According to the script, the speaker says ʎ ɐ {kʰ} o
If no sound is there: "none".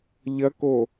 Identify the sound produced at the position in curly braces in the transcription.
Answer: k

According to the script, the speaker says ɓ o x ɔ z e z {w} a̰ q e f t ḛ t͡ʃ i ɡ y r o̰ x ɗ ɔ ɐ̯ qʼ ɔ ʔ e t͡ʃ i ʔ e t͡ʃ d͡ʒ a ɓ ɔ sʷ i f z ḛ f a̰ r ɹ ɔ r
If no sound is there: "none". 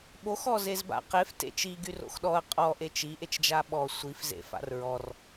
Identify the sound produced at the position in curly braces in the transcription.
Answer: b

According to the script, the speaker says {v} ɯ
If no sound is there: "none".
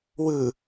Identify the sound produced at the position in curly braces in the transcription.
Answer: w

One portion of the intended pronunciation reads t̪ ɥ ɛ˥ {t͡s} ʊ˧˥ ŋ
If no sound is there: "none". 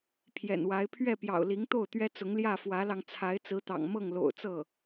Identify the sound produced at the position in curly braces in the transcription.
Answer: t͡s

